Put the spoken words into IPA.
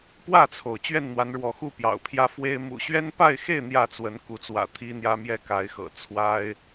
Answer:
p w ä˥˨ t͡sʰ o˩ ʊ̯ t͡ɕ ɥ ɛ˥˨ n n̪ w a˨˦ n ɻ w ɔ˨˦ x u˥˨ p j ɑ̰˨˩ ʊ̯ pʰ j ä˦ f w e˦ ɪ̯ m ṵ˨˩ ɕ ɥ ɛ˦ n p a˥˨ ɪ̯ x e˥˨ ɪ̯ n̪ j ä˥˨ t͡s w ə˨˦ n k u˨˦ t͡s w ä̰˨˩ t̪ʰ i˦ n̪ j ä˦ m j ɛ˦ k a˨˦ ɪ̯ x ɤ̰˨˩ t͡sʰ w a˦ ɪ̯

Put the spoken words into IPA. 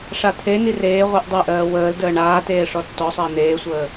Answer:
ʂ a t̪ʰ e n i r eː ʁʷ ɜ ʔ dˤ e ʔ ɜː w əː l d əː ɳ aː t eː ʂ ɔ tː ɔ sˤ əː n̪ eː sʷ əː

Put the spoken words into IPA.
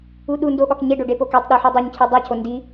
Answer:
u ɗ u n d o ɠ ɒ k ɲ e ɖ o ɖ e p o k e tˤ ɗ u ħ u dˤ o ɲ cʰ i dˤ æ cʰ o n d i

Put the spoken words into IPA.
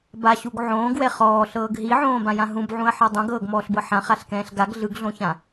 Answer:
b a ɕ u ɡ ʕ õː ɡ w ɛ χ ɔː ɬ ɤː ɡ ɦ i ʕ õː b ã j ã ɦ ũ b ʕ ũ ɐ̯ ħ ɤ dˤ õ ɡ ɤː ɡ m ɔː ɬ b ɤ ħ ã χ a ɬ k ɛ̃ː ɬ ɡ a ɡ ɮ ɯ ɡ ɮ õ ç ã

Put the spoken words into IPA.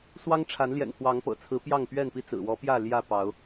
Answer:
s w ɑ˦ ŋ ʈ͡ʂʰ a˨˦ n l j ɛ̰˨˩ n pʰ w ɑ˨˦ ŋ p ɤ̰˨˩ t͡sʰ ɹ̩˨˦ p j ɑ˥˨ ŋ p ɥ ɛ˥˨ n p i˦ t͡s ɹ̩˨˩ w ɔ˨˦ p j ä˥˨ l j ä˥˨ p ɑ˨˦ ʊ̯

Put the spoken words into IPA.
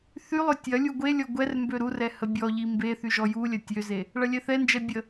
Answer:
θ y lˠ ø tʲ ɐ lʲ u ɡʷ e lʲ ɔ ɡʷ ɛ r m b ø ɾ u r ɛ h ə bʲ ɔ ʎ i m b e θ y ʒ ɔ j u lʲ ɐ tʲ ø z e | ɭ ɐ lʲ ɛ θ ɛ n d͡ʒ ɛ bʲ ə

